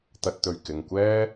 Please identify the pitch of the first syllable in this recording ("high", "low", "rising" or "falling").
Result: low